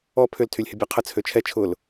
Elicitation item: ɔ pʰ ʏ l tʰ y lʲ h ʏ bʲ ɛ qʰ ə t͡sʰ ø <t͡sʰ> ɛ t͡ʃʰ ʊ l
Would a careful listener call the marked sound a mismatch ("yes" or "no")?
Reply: yes